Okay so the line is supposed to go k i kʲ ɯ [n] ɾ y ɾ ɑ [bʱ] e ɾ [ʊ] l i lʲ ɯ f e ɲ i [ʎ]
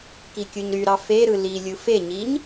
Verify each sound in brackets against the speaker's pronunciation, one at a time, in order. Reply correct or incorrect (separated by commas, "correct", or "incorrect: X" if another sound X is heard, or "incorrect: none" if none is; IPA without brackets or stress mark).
incorrect: ɲ, incorrect: f, incorrect: ɯ, incorrect: ɲ